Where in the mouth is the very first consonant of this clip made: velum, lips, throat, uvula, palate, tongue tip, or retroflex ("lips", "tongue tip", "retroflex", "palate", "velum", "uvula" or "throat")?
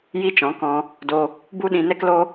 palate